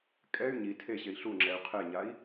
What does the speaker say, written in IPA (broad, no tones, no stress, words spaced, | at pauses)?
kʼɛy̯ ɲi tʰeɕei̯ ɬuŋ͡ǁɛy̯ qʰeɲai̯